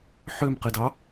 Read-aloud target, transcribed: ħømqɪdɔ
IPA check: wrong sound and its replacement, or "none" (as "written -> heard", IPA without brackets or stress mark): ɔ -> ɑ